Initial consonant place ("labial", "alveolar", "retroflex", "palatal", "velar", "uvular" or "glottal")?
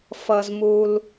labial